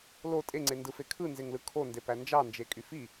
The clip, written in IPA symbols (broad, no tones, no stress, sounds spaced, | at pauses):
l o tʼ e ŋ͡ǀ e n d ɯ f e kʰ ɯ n z e ŋ l ɯ kʰ o n d e p æ n d͡ʒ ɑ n d͡ʒ e kʼ y f i